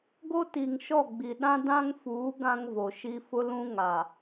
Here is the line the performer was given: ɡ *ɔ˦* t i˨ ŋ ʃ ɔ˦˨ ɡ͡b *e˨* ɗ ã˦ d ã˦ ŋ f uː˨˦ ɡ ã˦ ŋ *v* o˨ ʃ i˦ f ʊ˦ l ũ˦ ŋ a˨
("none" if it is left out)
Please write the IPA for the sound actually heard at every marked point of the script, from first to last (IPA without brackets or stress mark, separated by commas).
o˦, i˨, v